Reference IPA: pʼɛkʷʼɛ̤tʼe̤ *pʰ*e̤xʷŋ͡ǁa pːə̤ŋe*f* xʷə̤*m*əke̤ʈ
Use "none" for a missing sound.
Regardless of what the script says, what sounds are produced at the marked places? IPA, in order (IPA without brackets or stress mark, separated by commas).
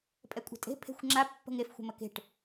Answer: pʰ, f, m